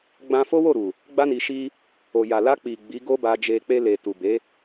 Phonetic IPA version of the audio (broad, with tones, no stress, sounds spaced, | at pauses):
ɡ͡b ã˧ f o˦ w o˦˨ ɾ u˨ | ɡ͡b a˧ n i˨ ʃ i˧ | o˨ j a˨ l a˧ k͡p i˨ ɡ͡b i˨˦ ɡ o˦ b a˧ d͡ʒ e˧ k͡p e˧ l e˨ t u˨ b e˨˦